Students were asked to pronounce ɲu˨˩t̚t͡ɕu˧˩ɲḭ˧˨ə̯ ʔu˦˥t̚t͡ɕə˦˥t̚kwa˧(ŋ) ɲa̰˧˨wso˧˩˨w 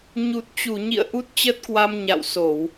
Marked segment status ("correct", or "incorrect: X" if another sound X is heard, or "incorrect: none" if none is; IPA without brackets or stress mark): incorrect: m